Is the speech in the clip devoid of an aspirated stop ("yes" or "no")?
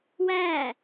yes